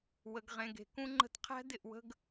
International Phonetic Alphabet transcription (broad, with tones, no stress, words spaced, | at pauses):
wə˨ɡʁẽ˨ɡ e̤˨kũ˦ŋ͡ǃə̤˦t qʰæ̤˦dɪ˦˨ʔwə̤˦ɡ